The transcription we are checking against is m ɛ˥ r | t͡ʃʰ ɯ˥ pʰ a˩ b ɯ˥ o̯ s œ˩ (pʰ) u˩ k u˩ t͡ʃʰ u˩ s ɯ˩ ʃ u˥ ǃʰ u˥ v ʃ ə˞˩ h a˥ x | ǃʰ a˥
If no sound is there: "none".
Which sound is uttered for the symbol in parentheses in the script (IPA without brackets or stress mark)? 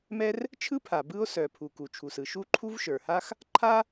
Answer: pʰ